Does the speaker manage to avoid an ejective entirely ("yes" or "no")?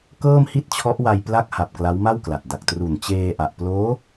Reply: yes